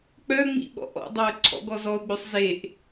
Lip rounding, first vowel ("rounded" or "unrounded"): rounded